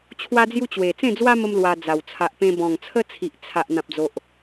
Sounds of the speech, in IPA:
t͡ɕʰ w a˦ d͡z j u˦ t͡ɕ w e˨˩ t͡s ẽ˥˧ d͡z w a˦ m ə˧ m l w a˧ d͡z a˨˩ w t͡sʰ a˨ ʔ p ẽ˧ b ɔ̃˨˩ ŋ t͡sʰ ə˦ t͡sʰ i˨ ʔ t͡sʰ a˨ ʔ n̪ ã˨ p̚ d͡z o˨ ʔ

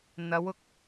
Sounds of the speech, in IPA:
n̪ ɐ˨˧ w ʊ˨ k̚

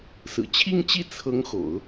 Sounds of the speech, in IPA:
s ɹ̩˨˩ t͡ɕʰ i˥˧ ŋ t͡ɕ i˥˩ t͡sʰ ɤ˧˥ ŋ x o̰˨˩˦ ʊ̯

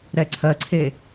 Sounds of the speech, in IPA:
ɾ ɛ ǀʰ ɜ ǀʰ e

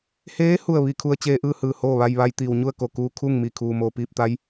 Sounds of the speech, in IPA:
h eː˧˥ h u˥˨ ə̯ ʋ i˧ kʰ u˧ ə̯ t͡ɕ eː˧ ʔ ɯː˥˨ h ɯː˧˩ h oː˥˨ ʋ a˧ j ʋ a˧˥ j t̪ iː˩ w ɲ u˥˨ ə̯ k o˧˩ k uː˧ kʰ u˥˨ ŋ m i˧˩ kʰ uː˩ m oː˧˩ p iː˥˨ p̚ t̪ a˧˥ j

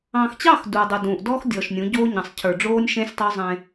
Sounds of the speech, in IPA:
ɑ̃ː˨ x t͡ɕ ɑ˦˨ x d uː˨ dˤ u˨ d ũː˨ ʔ d ɔː˦ x dʲ ɔː˨ ʃ nʲ ũ˨˦ ɟ oː˦ ɲ ɑ̃˨ sˤ cʰ ə˞˨ ɖ͡ʐ oː˦ nʲ ʃ ẽ˦ sʲ tˤ o˦ zˤ ẽ˦

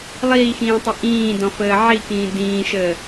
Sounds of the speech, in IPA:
lˠ iː x ĩː tˤ e ʔ ĩː d ɔ̃ f əː ʕ i k ĩː d ĩː ʃ əː

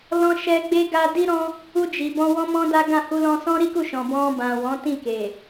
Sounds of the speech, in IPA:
l ɔ̃˧ ʃ ɛ˧ ɡ͡b e˧ ɡ a˧ d i˧ ɾ ɔ̃˧ | u˧ d͡ʒ i˨ b ɔ̃˧ w ɔ̃˦ m ɔ̃˦ d a˦ ɡ ã˦˨ h u˧ l ɔ̃˧ s ɔ̃˦ ɾ i˦ k u˦˨ ʃ ɔ̃˨ b ɔ̃˧ b ã˨ w ɔ̃˨˦ t ĩ˦˨ k e˨

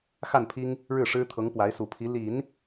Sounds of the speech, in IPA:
x a˥˩ n pʰ i˥ ŋ | ɻ ɻ̩˥˩ ʂ ɻ̩˥ t̪ʰ ɤ˧˥ ŋ p w a˧˥ ɪ̯ s u˨˩ pʰ i˧˥ l i˨˩˦ n

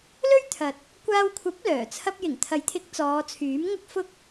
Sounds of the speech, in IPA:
l ɵ˥ ɥ t̪ʰ ɐ˨ t̚ | kʷ aː˧ w kʷʰ ɐ˨˥ p̚ l œː˨˩ t͡sʰ ɐ˧ p̚ j ɪ˨˩ ŋ t̪ʰ ɐ˨˥ j t̪ʰ ɪ˨˥ k̚ t͡s ɔː˨˧ t͡sʰ yː˨˥ m ŋ ɐ˥ k̚ f ʊ˥ k̚

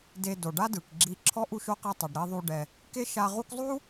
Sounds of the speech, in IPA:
d e˧ d o˨ ɖ a˦ d ɯ˨ k ɡ͡ǁ i˧ ǁʰ ɔ˦ ʔ u˦ ʃ o˦ q i˧ tˤ ɤ˨ ɖ ɾ i˧ ðˤ u˧ ɖ ɛ˧ | k e˦ ʃ a˧ ʁ u˦ k zˤ u˦

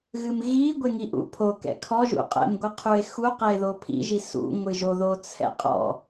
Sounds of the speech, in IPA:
ɣ ɨ m ɣ i ɡʷ e ŋ i ʔ ṵ pʰ o k ɛ̰ kʰ ɔ ʒ ṵ qʼ ɛ̰ m ɡʷ ɨ qʰ u e̯ x u q ɛ e̯ ð o pʰ ḭ ʒ i s ṵ ŋʷ ɨ ʒ o ð o t͡sʰ ɛ̰ qʼ ɔ̰

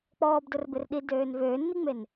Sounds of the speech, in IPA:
k͡p ɔː b d ʊ r b ɪ r ɗ i d øː n v øː nː i ŋ͡m e n

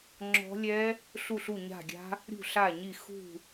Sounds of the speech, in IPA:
ŋ͡ǁ ɔ̤˦˥ lʲ ɛ˦˥ | ɬ u˦˨ ɬ u˦˨ ɲ a̤˦˨ ɡʲ a̤˦˥ | ɾʲ ṳ˦˨ ɬ a˦˨ ɲ i˦˨ x ṳ˦˨

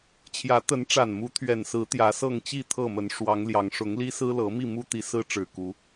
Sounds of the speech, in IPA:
t͡ɕʰ j ä˨˦ t̪ ə˨˦ n ʈ͡ʂ a˨˩ n m u˨˦ t̪ʰ ɥ ɛ˨˩ n s ɹ̩˨˦ t̪ j ä˨˦ s ɤ˥˨ ŋ t͡ɕ i˥˨ t̪ʰ ɤ˥˨ m ə˨˦ n ʂ w ɑ˨˦ ŋ l j ɑ˨˦ ŋ ʂ ʊ˨˦ ŋ l i˦ s ɹ̩˦ l ɤ˨˦ m i˥˨ m u˦ t̪ i˨˦ s ɹ̩˦ ʈ͡ʂ ɻ̩˨˩ k u˨˦

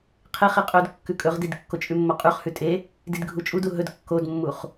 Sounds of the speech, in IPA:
qʰ e χ i qʼ ɵ d kː ʉ kʼ ɵ ʁ d i d kː o t͡ʃʼ ʉ mː o qʼ ʉ χ h ʉ tʼ e | d i d ɡʱ u t͡ʃʼ u d u ɦ ɵ d kː o d mː u χ

